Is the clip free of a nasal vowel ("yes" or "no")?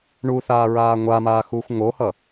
yes